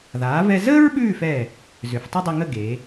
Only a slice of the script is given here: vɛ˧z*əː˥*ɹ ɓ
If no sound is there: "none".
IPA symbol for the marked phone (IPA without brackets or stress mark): əː˥